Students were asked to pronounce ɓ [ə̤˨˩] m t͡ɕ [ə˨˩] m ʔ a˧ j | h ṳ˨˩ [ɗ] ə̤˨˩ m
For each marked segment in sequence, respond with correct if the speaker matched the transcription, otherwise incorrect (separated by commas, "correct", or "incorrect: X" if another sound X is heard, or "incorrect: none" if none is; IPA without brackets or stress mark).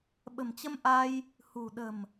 correct, incorrect: ə˧, correct